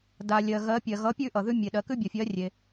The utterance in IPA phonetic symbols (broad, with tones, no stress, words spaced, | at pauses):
da˩lʲɜ˩ ɣɜ˩˥ pʲɜ˩ɣʌ˩˥ pʲʉ˥˧ʔʌ˩ðʉ˥˧ mʲe˩ ɗɜ˩kʉ˥˧bʲʌ˩fʲɜ˩˥ rʲe˩